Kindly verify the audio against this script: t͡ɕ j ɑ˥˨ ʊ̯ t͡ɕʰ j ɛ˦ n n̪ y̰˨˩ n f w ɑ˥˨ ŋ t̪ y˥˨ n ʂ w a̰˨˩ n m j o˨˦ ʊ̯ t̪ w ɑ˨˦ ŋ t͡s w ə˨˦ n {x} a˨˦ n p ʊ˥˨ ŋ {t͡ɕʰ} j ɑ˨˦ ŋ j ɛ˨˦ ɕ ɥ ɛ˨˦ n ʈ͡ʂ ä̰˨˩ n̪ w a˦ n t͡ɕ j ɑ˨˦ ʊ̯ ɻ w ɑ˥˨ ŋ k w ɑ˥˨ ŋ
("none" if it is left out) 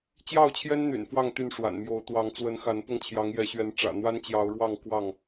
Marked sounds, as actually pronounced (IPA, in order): x, t͡ɕʰ

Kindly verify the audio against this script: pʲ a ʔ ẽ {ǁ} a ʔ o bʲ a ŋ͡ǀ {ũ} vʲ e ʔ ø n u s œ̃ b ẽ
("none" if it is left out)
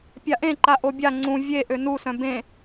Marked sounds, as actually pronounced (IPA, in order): ǃ, ũ

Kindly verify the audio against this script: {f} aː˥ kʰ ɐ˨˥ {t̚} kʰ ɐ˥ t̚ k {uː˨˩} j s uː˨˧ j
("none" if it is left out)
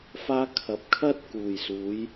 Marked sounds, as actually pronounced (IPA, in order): f, p̚, uː˨˩

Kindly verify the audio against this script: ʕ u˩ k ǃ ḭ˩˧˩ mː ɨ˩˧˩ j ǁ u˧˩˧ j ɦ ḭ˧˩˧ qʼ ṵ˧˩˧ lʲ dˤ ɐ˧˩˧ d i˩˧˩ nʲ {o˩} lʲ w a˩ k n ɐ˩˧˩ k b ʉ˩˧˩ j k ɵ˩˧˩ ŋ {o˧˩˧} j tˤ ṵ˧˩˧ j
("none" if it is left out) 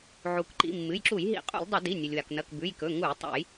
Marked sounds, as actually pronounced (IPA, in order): o˩, u˧˩˧

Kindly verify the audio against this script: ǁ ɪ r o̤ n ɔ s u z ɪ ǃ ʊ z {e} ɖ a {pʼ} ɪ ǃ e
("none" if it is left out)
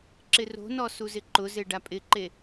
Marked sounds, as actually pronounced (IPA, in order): e, pʼ

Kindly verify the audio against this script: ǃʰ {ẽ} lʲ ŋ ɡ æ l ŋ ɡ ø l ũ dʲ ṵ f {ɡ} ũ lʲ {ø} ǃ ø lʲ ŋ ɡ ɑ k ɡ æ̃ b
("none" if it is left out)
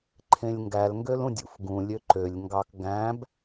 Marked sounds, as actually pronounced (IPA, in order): ẽ, ɡ, ø

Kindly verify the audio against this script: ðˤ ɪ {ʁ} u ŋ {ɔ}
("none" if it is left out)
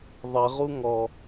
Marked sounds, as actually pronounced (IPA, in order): ʁ, ɔ

